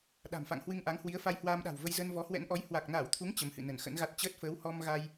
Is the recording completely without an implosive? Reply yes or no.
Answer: no